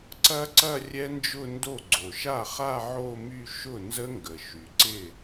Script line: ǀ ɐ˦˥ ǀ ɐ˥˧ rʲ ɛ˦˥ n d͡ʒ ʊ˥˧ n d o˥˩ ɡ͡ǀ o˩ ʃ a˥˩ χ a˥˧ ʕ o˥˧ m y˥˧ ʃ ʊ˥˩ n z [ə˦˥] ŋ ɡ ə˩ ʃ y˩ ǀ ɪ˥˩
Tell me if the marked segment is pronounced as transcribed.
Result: yes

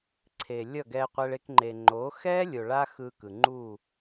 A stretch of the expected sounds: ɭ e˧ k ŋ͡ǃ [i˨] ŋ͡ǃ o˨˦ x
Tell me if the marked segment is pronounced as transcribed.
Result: no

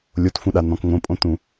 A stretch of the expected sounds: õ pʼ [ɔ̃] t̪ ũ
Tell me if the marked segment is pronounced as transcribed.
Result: no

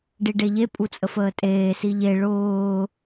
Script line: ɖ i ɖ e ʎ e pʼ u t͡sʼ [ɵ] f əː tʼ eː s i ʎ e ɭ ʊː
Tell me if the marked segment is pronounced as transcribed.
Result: no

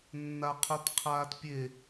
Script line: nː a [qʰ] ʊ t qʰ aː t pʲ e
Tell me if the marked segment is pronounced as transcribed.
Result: yes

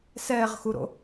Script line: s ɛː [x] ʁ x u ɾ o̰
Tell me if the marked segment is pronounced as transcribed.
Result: no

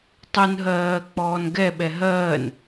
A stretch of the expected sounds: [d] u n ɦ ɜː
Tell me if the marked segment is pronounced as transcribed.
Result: no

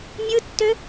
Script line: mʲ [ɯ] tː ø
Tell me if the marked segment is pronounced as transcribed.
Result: yes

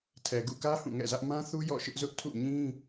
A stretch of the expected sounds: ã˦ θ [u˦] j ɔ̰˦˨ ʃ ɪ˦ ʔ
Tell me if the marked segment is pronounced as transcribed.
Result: yes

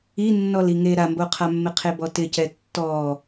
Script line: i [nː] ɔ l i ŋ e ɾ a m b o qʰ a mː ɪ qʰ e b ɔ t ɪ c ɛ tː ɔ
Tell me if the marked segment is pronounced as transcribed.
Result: yes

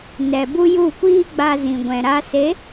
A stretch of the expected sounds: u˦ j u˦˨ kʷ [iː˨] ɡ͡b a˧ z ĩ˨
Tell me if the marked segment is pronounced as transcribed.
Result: no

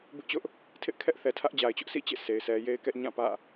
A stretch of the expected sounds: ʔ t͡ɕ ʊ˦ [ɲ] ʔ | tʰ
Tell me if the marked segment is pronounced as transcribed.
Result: no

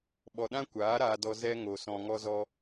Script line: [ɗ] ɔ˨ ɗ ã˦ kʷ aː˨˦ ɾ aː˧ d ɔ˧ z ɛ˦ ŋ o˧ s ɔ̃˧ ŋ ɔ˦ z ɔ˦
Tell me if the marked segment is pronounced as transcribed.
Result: no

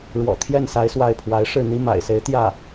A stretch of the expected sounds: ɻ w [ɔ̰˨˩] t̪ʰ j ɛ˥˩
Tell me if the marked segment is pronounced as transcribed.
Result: yes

